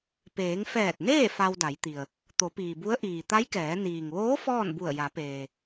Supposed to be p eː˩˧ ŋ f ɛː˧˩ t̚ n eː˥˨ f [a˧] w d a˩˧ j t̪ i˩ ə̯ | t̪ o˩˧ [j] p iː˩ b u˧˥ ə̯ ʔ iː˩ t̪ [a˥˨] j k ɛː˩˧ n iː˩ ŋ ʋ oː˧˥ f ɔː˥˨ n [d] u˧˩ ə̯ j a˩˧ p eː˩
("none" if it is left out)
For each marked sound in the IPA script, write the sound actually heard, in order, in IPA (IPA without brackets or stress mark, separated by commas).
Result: a˧, none, a˧˥, b